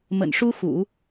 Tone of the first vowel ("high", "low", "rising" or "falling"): low